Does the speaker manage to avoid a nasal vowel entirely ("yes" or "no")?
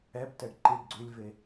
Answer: yes